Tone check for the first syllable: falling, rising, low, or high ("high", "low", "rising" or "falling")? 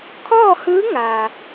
falling